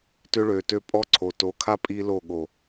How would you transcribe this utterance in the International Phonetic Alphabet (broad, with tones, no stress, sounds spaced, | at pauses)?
t ʏ˦ ɭ ø˨ t ø˦ pʼ ɔ˦ ǀʰ o˨ t o˨˦ kʰ a˦ pʼ i˦ l o˦˨ ɠ o˨